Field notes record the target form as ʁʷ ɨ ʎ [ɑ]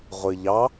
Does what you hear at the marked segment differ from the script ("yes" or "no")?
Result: no